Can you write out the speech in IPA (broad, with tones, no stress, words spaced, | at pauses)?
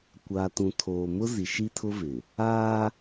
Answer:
kʷa˨ tũ˨tʰoː˨mʊ˦ zi˨ʃi˦tʰʊ˦vɪ˨ | aː˦